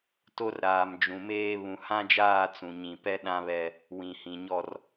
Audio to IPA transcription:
t o˦ r ɾ aː˨ m d͡ʒ ũ˨ m eː˦ β ũ˨ h ã˦ d͡ʒ aː˦˨ t͡s ũ˨ ɲ ĩ˨ p ɛ˦ ɗ ã˦ β ɛ˦ | w ĩ˨ h ĩ˨ ɲ ɔ˦ r

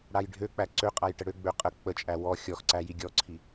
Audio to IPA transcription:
ɽ a j ɖʱ ø k͡p æ ǀ ø qʼ a j ʈ ə ɽ ø ɡ͡b ø qʼ ə k͡p ə t͡ʃʼ æ w ɔ xʲ ɔ x ǀ æ j i ɡʲ ɔ ǀʰ i

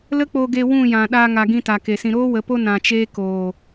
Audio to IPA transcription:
l ə˦ k͡p o˧ ɡ e˧ w ũ˦˨ j ã˨ ɗ aː˧ ŋ a˨ ɡ ĩ˧ t a˨ k e˨ s ĩ˧ ɾ oː˦ w ə˨˦ p o˦ n ã˧ t͡ʃ eː˦ k oː˨

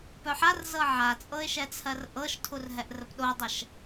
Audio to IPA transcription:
p œ ħ a r z ɤ ʕ a t͡sʼ ɤ ɪ̯ ʃ ɛ t͡sʰ ɜ r ʔ ɤ ʃ tʰ u r ɦ ɛ ʔ r ə p ɗ o dˤ ə ʃ

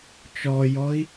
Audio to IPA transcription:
t͡ʃ ɔ j ɔ i̯

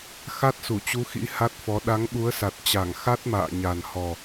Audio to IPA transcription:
x a˦˥ t̚ s u˧˩ t͡ɕ u˨˦ x ḭ˧˥ h a˦˥ t̚ f ɔ˨˦ ɗ a˨˦ ŋ ɓ u˨˦ ə̯ s a˨˩ t̚ t͡ɕ a˧˩ ŋ x a˦˥ t̚ m a̰ː˧˨ ɲ a˨˩ n h ɔ˨˩

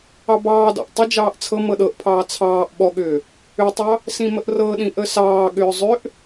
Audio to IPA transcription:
ɑ b ɑː d ɑ̰ ʔ tˤ ʊ d͡ʒ ɑː ʔ t͡sʰ ɤ m ɤ ɗ ɤ ʔ pʰ ɑː t͡sʰ ɑː ʔ ɓ ɔ ɠ ʏː | ʏ tˤ ɑ | s ĩ m ə ʔ r ɤ ɗ ĩ ʔ ə s ɑː ɠ ʏː zˤ ʏ ʔ

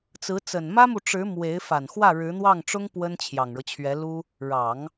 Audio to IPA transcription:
t͡s ɹ̩˧˥ t͡s ə˨˩ n m ä˥ m u˨ ʈ͡ʂ ɻ̩˧˥ m w e˧˥ ɪ̯ f a˨˩ n x w ä˥˩ ɻ ɻ̩˧˥ n̪ w ɑ˥˩ ŋ ʈ͡ʂ ʊ˥ ŋ p w ə˥ n t͡ɕʰ j ɑ˨˩ ŋ ɻ ɤ˦ t͡ɕʰ ɥ ɛ˧˥ l u˥ | ɻ ɑ˨˩˦ ŋ

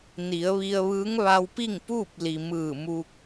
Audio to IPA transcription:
n i˩˧ ə̯ ʋ i˧ ə̯ ʋ ɯː˧˥ ŋ ʋ a˧ w p i˥˨ ŋ p uː˥˨ p̚ l i˩ m ɯː˧˩ m u˧ k̚

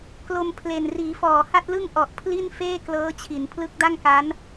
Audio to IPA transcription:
k l o˧ m pʰ l e˨˩ n r iː˩˦ f ɔː˨˩ h a˥˩ t̚ l ɯ˥˩ ŋ ʔ ɔ˨˩ ʔ pʰ l i˥˩ n f eː˥˩ k l ɤː˦˥ t͡ɕʰ i˩˦ n pʰ l ɯ˦˥ k̚ d a˥˩ ŋ k a˦˥ n

